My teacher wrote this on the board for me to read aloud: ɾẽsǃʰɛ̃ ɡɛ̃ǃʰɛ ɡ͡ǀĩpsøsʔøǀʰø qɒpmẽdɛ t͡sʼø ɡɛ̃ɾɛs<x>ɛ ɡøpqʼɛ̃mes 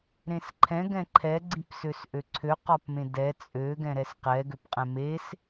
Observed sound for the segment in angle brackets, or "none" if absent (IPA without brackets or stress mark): q